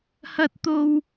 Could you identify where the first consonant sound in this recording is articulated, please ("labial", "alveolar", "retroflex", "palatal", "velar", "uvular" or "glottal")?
glottal